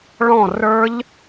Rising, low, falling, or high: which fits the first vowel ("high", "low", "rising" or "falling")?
falling